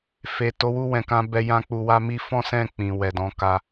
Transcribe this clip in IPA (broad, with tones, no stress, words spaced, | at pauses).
fe˨ to˨˦wu˦˨wɛ̃˨kã˧ bɛ˧jã˦k͡pu˧wa˦ mi˦fɔ̃˦sɛ̃˦˨k͡pĩ˨ wɛ˨dɔ̃˨˦ka˧